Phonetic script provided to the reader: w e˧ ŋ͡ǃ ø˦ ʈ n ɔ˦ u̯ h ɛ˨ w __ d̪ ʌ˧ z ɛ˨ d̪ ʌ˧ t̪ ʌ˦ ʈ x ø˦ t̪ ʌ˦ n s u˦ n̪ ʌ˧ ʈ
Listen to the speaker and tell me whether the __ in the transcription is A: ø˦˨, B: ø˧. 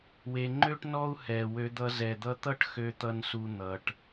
B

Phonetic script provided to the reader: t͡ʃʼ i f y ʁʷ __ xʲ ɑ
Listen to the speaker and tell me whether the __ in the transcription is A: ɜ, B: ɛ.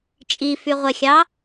B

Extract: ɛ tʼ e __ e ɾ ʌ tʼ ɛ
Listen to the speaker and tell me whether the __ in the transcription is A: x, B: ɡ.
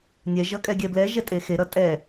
A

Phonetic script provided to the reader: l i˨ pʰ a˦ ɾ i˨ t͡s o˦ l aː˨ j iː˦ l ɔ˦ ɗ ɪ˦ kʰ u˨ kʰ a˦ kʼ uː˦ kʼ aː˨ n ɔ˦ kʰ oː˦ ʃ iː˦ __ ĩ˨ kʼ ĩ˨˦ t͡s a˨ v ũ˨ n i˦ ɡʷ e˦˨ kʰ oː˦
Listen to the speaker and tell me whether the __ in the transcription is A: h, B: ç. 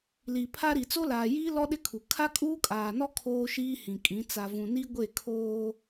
A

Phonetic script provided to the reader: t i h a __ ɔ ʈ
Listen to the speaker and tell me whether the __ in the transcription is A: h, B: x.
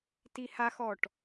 B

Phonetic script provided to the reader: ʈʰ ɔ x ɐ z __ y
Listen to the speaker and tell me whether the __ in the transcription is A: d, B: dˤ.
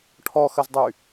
B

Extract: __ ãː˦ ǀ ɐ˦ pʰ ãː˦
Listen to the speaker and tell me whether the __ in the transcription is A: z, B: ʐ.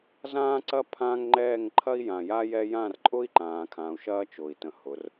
A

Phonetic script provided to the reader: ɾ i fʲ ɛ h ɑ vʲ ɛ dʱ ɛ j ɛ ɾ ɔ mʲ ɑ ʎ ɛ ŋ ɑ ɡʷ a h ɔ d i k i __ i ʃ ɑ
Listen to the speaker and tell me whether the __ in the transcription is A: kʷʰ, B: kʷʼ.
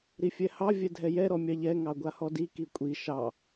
B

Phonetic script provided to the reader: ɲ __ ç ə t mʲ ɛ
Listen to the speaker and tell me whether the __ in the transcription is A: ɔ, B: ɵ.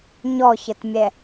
A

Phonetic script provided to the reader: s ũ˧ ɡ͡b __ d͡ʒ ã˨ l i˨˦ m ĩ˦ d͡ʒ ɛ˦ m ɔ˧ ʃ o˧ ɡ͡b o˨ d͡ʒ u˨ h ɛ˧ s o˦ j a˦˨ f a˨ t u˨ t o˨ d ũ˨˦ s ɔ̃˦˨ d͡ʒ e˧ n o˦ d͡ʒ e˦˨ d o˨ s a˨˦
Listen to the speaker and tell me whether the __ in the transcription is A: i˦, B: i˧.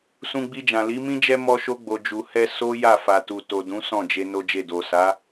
B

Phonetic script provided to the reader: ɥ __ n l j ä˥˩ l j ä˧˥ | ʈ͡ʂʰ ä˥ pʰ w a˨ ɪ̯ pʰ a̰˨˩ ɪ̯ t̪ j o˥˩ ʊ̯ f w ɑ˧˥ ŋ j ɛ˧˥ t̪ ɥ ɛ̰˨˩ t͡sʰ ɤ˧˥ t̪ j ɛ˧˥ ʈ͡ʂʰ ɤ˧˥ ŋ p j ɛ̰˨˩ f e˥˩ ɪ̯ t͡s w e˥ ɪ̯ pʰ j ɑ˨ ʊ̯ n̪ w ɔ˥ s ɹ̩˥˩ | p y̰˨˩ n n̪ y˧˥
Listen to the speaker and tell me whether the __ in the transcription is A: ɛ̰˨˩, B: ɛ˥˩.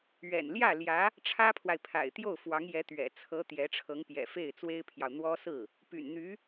A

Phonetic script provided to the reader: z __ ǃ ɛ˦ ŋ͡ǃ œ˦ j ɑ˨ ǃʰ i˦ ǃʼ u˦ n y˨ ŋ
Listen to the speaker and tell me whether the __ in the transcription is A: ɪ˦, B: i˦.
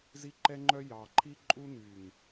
B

